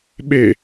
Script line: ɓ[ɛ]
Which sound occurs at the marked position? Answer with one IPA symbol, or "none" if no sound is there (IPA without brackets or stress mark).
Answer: e